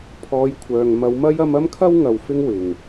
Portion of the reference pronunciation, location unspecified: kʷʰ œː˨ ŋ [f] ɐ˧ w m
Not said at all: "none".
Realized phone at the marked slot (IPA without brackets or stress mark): m